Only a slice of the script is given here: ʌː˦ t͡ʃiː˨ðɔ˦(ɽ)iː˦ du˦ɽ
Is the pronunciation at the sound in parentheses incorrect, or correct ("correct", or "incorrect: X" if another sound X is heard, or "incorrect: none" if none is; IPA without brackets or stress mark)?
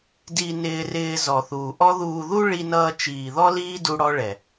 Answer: incorrect: l